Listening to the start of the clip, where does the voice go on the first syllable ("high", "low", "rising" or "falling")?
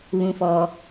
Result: low